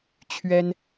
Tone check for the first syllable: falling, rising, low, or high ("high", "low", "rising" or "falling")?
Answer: high